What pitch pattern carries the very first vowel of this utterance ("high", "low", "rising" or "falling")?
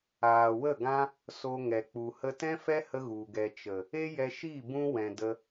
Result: low